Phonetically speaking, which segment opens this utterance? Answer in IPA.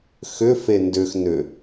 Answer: x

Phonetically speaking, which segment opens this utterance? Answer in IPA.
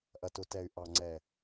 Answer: ʔ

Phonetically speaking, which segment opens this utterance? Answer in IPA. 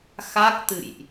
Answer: x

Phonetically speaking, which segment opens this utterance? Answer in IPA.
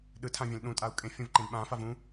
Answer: ɗ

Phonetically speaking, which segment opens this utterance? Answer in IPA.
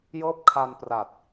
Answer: j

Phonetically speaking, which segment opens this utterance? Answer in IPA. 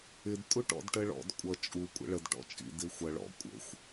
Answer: ɪ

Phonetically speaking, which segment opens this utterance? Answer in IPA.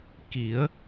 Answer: k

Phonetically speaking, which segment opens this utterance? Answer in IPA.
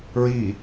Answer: ɹ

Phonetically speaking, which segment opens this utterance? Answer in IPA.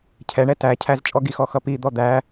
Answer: cʰ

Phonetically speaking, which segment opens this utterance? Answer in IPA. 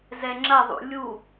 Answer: z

